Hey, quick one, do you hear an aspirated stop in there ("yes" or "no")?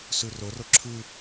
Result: yes